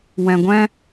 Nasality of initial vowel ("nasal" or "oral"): nasal